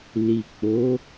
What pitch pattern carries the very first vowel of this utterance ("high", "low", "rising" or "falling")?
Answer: low